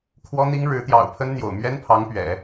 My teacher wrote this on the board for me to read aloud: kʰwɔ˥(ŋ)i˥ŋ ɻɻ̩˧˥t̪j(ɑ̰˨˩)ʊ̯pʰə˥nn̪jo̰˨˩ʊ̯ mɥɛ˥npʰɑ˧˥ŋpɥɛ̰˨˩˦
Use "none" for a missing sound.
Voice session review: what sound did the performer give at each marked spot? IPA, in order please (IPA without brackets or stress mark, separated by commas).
n̪, ɑ̰˨˩